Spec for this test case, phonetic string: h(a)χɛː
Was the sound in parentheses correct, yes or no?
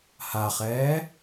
yes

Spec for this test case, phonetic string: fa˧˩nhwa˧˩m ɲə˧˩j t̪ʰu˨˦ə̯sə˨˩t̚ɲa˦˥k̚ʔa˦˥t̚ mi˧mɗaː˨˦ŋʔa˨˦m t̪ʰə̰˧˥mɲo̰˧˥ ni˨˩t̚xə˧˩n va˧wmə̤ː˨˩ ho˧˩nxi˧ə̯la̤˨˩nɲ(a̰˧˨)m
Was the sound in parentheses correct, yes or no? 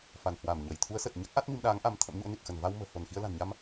no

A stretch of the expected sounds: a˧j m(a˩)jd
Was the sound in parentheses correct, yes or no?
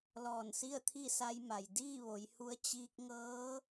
yes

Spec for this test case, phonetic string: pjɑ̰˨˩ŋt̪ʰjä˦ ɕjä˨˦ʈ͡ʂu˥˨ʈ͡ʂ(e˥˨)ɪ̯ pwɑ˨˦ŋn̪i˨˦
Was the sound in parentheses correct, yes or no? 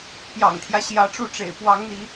no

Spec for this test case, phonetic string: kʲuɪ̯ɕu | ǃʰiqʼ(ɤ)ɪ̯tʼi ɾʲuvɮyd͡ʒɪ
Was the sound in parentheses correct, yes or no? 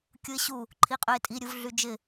no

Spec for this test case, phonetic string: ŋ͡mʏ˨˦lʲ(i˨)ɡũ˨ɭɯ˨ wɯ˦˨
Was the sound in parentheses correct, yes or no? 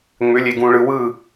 no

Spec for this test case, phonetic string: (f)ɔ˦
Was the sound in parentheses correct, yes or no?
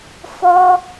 yes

